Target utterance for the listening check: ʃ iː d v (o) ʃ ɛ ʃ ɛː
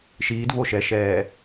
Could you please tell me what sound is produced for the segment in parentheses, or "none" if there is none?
o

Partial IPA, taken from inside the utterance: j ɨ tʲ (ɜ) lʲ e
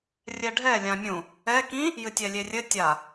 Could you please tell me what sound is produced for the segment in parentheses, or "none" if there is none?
ɛ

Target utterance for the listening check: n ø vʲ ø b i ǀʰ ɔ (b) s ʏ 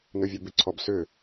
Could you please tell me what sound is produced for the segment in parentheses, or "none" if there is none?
b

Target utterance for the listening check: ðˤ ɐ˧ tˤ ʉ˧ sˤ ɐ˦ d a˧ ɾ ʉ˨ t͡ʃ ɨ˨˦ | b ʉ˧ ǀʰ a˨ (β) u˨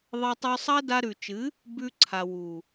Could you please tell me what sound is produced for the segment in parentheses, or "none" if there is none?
w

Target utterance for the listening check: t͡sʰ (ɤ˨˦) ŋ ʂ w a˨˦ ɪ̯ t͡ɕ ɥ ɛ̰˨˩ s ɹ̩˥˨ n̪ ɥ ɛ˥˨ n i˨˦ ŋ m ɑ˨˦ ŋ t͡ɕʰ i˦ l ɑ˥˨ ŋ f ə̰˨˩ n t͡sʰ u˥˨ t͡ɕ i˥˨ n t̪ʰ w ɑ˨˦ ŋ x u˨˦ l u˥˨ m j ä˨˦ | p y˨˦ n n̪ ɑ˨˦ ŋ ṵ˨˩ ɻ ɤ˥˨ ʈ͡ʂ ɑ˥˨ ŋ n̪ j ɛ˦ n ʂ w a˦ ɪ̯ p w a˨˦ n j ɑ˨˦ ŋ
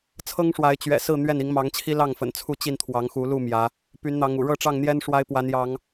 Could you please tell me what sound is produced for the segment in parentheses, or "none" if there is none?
ɤ˦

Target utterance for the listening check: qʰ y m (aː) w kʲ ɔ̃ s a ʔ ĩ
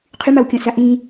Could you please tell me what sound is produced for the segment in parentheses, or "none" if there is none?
a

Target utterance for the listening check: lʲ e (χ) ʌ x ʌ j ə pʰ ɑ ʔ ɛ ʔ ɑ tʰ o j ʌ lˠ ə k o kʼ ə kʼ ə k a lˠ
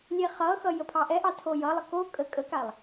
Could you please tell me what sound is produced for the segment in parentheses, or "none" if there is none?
χ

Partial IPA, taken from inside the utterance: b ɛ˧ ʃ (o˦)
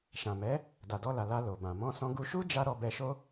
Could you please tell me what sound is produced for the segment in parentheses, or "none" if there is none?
o˦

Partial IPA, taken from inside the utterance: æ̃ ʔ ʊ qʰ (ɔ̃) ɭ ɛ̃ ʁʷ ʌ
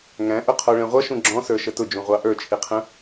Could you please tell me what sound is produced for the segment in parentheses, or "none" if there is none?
ɔ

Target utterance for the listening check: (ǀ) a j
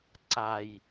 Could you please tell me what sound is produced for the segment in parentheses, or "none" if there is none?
ǀ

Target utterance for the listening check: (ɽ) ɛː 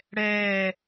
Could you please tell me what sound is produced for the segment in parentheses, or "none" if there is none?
ɽ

